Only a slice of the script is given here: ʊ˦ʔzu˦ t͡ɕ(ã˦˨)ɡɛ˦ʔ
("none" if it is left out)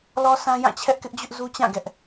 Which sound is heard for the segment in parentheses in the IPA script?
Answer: ã˦˨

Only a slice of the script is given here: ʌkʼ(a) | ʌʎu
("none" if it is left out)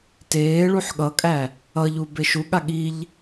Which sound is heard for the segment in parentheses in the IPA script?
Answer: æ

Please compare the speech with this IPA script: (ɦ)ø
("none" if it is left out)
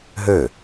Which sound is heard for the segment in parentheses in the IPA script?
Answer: ɦ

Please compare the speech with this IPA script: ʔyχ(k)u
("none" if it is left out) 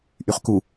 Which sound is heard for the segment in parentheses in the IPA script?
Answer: k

